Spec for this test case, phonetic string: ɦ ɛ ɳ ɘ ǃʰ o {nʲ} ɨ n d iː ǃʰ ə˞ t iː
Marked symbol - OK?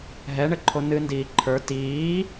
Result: no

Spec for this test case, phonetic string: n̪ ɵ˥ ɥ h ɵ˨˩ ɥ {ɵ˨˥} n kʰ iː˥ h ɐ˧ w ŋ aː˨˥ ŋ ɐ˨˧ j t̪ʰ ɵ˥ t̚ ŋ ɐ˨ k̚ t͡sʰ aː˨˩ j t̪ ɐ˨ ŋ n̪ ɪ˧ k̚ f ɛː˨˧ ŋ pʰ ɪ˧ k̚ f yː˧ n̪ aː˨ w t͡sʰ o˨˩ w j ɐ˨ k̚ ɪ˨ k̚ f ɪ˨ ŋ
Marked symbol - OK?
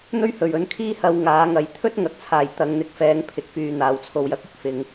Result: yes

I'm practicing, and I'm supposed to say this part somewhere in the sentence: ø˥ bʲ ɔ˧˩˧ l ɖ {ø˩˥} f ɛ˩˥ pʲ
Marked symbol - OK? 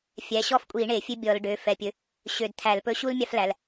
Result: no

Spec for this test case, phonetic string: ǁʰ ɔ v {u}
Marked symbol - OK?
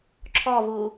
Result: yes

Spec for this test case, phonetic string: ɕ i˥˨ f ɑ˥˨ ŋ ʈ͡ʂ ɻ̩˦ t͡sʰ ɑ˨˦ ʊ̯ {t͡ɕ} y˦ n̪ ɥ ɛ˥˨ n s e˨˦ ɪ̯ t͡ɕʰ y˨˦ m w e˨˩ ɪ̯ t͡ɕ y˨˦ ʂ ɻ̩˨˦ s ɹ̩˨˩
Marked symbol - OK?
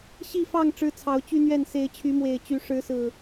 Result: yes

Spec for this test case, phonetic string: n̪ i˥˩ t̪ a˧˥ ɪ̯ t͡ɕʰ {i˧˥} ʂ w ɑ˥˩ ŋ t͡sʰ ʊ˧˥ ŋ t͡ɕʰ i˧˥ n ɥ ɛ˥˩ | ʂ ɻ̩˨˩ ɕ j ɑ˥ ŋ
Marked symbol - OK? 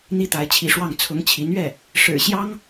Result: yes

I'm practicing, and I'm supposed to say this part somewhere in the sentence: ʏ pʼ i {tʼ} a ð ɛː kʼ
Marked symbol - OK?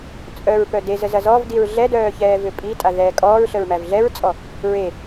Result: yes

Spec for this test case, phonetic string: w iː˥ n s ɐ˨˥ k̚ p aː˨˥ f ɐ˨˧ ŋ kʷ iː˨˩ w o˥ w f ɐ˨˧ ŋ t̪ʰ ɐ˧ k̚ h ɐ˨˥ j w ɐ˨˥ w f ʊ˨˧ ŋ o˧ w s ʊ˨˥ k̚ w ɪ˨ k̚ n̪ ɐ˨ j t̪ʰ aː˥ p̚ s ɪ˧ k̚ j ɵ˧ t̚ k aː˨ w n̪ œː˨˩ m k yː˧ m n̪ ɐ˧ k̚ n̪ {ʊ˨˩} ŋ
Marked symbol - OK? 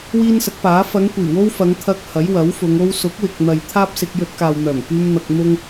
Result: no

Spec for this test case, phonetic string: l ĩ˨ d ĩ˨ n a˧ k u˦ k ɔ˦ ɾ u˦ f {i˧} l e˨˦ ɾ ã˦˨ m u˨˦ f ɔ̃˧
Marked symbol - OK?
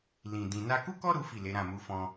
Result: no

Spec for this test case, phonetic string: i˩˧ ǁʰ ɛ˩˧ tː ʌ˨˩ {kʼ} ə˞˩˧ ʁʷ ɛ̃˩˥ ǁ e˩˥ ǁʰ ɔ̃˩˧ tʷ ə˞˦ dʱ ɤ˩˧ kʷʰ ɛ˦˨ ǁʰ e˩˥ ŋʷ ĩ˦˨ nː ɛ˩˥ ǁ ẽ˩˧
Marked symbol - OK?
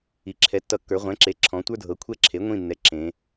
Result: no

